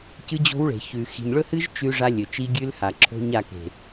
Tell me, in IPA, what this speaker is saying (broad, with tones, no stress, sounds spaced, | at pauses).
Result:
c ɨ˦ d͡ʑ o̤˦ w ɭ e̤˨ ç ʉ˨ x i̤˨ ɲ ɭ ɵ˦ h ɨ˦ ʒ t͡ʃ ʉ˦ ʐ a˦ lʲ ɵ˨ t͡ʃ i˦ ɡʲ ʉ˦ l h a˨ ǁʰ o̤˦ ɲ a˦˨ k e̤˨